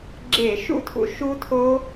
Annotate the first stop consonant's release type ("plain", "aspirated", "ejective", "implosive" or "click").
click